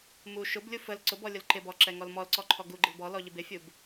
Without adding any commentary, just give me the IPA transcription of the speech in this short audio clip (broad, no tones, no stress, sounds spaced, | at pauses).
m u ʃ ʊ b lʲ u f ə l ǀ ʊ b ɔ lʲ ʊ l ǃ ɪ b ɔ ǁ ɛ ŋ ɔ l m ɔ l ǀ ɔ ǃʰ ɔ ɡ u ɡ͡ǃ ɪ l b ɔ l ɔ ʎ ɪ b ɪ fʲ u b